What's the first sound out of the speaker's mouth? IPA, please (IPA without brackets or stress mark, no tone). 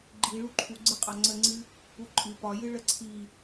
ɡ͡ǃ